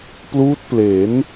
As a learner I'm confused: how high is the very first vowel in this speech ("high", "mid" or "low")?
high